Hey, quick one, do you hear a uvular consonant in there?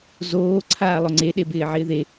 no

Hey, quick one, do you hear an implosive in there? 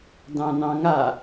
no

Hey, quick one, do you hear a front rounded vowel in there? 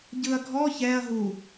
no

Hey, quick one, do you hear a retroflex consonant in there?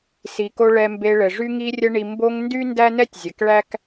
yes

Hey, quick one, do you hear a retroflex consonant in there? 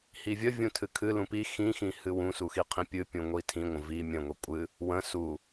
no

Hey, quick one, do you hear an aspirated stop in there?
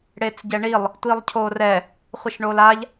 yes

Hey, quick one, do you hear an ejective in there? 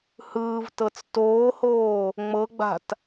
no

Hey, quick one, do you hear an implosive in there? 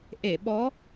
yes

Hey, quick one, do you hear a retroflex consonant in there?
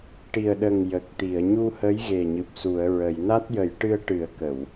yes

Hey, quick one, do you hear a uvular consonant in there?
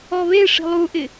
no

